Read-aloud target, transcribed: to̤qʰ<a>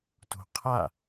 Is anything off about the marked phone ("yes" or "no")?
no